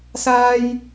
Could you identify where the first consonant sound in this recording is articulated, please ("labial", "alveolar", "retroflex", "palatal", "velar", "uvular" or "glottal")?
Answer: alveolar